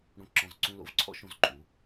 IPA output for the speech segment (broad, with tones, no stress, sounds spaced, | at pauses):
ɽ õ˧ ǁ ɔ̃˧˩ z ǀ ũ˧ l o̰˧ v ǀʰ ɔ̰˥˧ ʃ õ˧˩ z ǃʼ u˩˧